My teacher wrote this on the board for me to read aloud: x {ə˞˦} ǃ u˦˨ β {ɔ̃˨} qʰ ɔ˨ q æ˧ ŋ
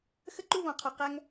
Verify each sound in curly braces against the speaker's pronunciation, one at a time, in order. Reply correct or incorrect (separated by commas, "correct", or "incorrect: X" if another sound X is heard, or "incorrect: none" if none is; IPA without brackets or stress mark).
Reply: incorrect: ə˦, correct